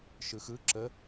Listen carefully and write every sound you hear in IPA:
ʃ ɯ x ɯ ǁ ə

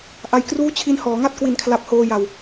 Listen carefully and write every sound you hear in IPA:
ʔ a˧ j k r uː˥˩ t͡ɕʰ i˦˥ n h ɔː˩˦ ŋ a˥˩ t̚ k w i˨˩ n kʰ l a˨˩ p̚ h oː˧ j a˨˩ w

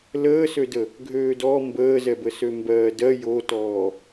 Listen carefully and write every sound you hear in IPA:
l əː s ø d ə | ɡʱ øː d ɔ m b əː z ɛ b ə s ø m b ɜː d ɜ j o t ɔː

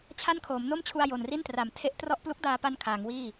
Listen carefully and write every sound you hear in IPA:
t͡ɕʰ a˥˩ n kʰ oː˩˦ m n o˥˩ m t͡ɕʰ u˧ a̯ j o˨˩ n r i˥˩ n t r a˩˦ m tʰ e˦˥ ʔ t r ɔ˥˩ ʔ p l u˦˥ k̚ d aː˧ p a˧ n kʰ aː˩˦ ŋ w iː˥˩

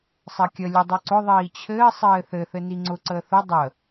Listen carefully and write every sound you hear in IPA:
sˤ ɘ kʲ ə lʲ ʊ dˤ ʊ ǀ ʊ ðˤ iː t͡ɕʰ ɘː sˤ ɘː θ ɘ θ ɘ n i ŋ͡ǀ ʊ ǀ əː θ ʊ dˤ ə

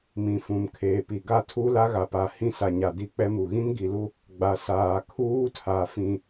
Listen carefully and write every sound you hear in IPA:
m ĩ˨ f ũ˨ m kʰ eː˨ p i˨ ɡ a˦ tʰ u˦ l a˦ ɣ a˨ p a˨ h ĩ˦ s a˨ ɲ a˨ d i˦ k͡p ɛ˦ m u˨ ɣ ĩ˦ n ɡ i˨ l u˦ | ɡ͡b a˨ s aː˨ kʰ uː˦ tʰ a˨ f ĩ˨

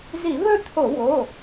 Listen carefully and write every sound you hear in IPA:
z i˧˩˧ β ɵ˥˨ t̪ʰ o˧˩˧ w o˩˧˩

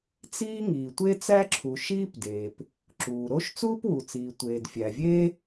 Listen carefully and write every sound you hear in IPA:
t͡s iː˥ ŋ iː˩ tʷ e˥ t͡s æ˥ ǁʰ u˩ ʃ iː˥ p d eː˩ p | ǁ uː˩ ɾ o˥ ʃ t͡s uː˥ p w u˩ t͡s iː˩ tʷ eː˩ d fʲ æ˩ vʲ eː˥

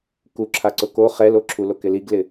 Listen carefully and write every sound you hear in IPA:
k u ǁʰ a ǀ ʊ k o χ ɛ l o ǁʰ u l o k ɪ l i ɡ l ɪ

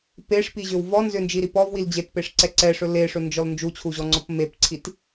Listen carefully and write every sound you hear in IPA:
p e ʂ p i ʑ ʏ w v ɔ n z ʏ n d͡ʒ i ɾ i p ɔ v w i l d͡ʑ e t p e ʂ ǀ ɛ ǀ ɛ ʂ ɵ l e ʂ ɵ n d͡ʒ ɔ l n d͡ʒ u t͡ɕʰ u ʑ ɔ ŋ͡ǀ ɔ p m e p ǀʰ i t

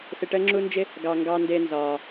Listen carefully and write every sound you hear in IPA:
s ɪ˧ ʈ əː˥ ŋ͡ǁ u˥ n d͡ʒ ɪ˥ | ɡ ɑ˧ ŋ ɡ ɑ˧ n d ɪː˧ n z ɒː˩

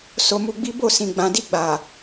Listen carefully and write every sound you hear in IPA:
s o˧ m u˧ ɡ͡b i˦ b o˦˨ s ĩ˨ ɡ͡b ã˨ d i˧ ɡ͡b a˨

